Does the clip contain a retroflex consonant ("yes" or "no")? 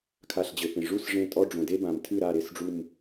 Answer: yes